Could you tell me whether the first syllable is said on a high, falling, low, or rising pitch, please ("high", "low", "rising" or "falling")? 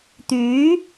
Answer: rising